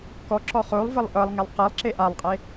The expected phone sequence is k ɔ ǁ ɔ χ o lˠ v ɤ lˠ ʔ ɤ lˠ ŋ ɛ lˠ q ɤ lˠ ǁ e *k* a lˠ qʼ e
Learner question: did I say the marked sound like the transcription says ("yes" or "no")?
no